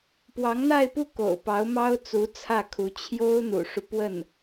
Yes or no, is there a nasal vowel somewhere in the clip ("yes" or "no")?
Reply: no